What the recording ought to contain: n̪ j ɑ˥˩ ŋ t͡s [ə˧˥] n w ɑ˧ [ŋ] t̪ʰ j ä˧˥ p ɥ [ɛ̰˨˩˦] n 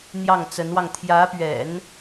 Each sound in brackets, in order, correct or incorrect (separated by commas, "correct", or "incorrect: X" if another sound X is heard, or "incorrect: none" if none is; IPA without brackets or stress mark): correct, correct, correct